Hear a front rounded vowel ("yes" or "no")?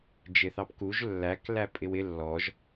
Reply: no